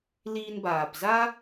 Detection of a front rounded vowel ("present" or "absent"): absent